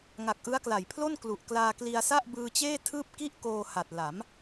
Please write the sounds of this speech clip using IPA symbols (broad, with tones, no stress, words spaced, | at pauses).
ŋa˨˩k̚ʔɯ˦˥a̯kla˨˩jpʰlo˥˩n klu˨˩ʔ klaː˧kli˧a̯sa˥˩ʔ bɯː˧t͡ɕeː˥˩ tʰɯː˥˩p̚ ki˦˥ʔ koː˧ha˨˩t̚ la˩˦m